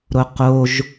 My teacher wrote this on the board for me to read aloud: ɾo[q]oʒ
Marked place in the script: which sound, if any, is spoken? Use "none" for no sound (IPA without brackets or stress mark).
q